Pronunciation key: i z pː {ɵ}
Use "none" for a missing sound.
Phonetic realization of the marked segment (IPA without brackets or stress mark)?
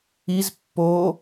o